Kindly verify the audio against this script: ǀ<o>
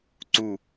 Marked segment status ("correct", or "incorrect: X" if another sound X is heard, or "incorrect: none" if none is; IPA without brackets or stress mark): incorrect: u